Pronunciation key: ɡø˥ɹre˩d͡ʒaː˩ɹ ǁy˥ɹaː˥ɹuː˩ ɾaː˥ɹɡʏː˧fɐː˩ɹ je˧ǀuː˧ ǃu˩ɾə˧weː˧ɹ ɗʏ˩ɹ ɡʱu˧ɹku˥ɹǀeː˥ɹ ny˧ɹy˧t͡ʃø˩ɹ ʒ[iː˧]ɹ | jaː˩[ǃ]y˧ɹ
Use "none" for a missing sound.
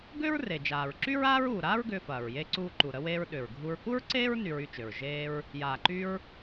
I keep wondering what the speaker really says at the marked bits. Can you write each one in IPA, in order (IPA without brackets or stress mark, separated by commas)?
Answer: eː˧, ǃ